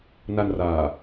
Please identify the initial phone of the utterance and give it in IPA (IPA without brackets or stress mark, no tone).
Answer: n